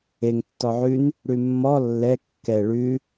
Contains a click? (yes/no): no